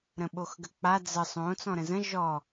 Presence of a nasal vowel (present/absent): present